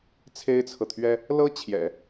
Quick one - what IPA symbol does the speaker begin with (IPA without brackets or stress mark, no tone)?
t͡sʰ